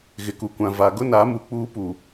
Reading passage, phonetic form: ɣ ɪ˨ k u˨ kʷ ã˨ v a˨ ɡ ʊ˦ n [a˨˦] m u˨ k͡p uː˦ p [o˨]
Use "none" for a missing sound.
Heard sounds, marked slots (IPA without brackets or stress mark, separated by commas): a˨˦, u˨